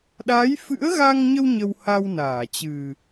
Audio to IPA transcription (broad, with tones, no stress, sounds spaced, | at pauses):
ɗ a˨˦ j f ɨ̰˧˥ ə̯ ɣ a˧ ŋ ɲ ə˧ w ɲ ə˧ w h a˧ w n aː˧˩ t͡ɕ ɨ˨˩